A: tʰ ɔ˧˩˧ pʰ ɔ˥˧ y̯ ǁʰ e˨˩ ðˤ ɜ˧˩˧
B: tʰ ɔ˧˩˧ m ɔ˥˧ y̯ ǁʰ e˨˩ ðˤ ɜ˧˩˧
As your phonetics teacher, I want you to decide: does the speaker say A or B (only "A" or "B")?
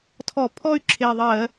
A